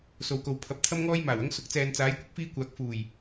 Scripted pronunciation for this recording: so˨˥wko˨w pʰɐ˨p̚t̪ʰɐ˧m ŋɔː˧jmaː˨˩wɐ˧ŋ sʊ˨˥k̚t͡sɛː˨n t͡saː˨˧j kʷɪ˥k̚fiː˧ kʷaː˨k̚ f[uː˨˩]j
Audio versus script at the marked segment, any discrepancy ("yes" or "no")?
no